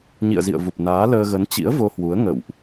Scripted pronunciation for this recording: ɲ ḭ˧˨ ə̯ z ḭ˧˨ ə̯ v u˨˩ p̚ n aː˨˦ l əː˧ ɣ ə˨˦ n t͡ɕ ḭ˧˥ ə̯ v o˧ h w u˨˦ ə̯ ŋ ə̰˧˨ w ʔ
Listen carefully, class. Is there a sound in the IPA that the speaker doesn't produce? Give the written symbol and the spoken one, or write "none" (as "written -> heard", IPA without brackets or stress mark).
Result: none